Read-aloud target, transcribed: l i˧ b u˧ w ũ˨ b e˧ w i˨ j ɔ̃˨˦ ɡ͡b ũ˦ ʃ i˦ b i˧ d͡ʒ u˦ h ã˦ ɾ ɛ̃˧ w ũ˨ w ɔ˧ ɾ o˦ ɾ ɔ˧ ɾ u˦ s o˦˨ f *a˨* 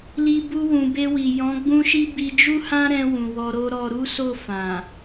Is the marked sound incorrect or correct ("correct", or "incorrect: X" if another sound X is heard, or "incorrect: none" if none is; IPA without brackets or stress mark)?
incorrect: ã˨